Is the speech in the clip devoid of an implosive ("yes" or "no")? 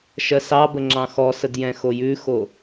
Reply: yes